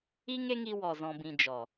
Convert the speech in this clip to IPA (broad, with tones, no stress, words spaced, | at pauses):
i˦ŋe˦ŋi˧ wɔ˨ zɔ̃˨bĩ˨ d͡ʒɔ˨